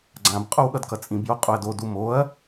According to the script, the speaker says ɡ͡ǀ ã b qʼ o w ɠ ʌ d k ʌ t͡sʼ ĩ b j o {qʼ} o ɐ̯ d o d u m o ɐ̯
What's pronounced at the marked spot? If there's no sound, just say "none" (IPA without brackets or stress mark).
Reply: qʼ